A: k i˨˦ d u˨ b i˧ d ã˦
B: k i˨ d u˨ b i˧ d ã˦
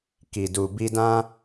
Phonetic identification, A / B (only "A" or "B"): B